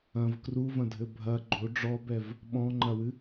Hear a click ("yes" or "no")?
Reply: yes